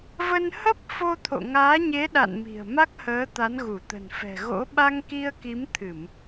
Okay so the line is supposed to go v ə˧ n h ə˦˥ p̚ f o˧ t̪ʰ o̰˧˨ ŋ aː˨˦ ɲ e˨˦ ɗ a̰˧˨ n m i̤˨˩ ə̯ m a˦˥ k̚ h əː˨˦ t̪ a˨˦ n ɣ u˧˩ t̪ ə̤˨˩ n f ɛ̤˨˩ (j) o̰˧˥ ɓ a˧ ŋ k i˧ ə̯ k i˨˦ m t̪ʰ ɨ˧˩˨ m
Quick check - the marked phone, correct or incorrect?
incorrect